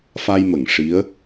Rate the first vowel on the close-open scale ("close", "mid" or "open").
open